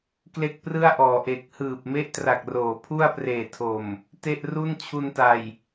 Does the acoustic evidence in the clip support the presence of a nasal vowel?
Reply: no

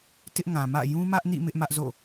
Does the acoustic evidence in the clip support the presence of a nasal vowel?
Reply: yes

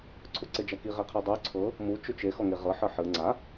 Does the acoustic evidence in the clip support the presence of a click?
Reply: yes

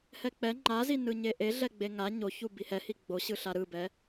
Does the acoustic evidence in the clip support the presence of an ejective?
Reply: no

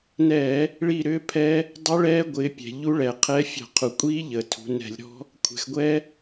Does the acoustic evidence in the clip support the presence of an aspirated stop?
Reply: yes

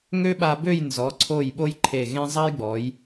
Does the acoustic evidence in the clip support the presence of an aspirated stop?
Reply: yes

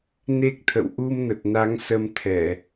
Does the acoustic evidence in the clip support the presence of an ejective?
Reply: no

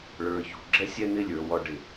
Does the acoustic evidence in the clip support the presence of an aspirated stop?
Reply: no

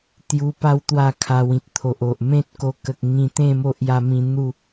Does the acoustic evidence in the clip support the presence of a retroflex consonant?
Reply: no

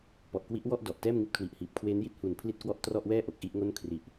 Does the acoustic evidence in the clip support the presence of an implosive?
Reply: no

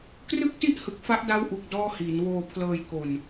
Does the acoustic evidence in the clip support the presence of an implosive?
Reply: no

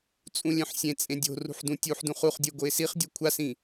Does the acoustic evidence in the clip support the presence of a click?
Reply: no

